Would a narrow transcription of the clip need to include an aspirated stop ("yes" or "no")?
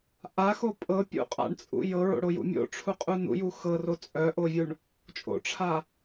yes